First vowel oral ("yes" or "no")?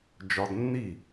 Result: yes